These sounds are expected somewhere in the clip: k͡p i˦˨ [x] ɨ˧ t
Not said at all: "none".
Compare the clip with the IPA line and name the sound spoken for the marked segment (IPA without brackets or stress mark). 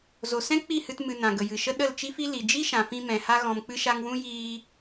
h